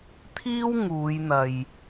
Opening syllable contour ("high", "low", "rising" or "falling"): high